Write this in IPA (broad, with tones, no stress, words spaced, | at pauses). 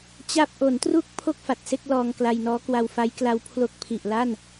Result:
t͡ɕa˥˩p̚ ʔo˩˦ntru˦˥k̚ pʰo˥˩k̚fa˨˩t̚se˥˩k̚ lɔː˧ŋkla˧jnɔː˦˥ kwa˧wfa˦˥jkla˦˥w pʰlo˦˥k̚pʰi˨˩ʔ la˥˩n